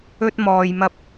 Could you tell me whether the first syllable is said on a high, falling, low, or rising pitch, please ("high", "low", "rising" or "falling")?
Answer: high